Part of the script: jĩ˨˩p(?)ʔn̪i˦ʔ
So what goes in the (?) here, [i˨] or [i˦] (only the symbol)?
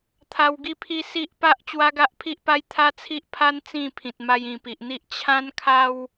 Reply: i˨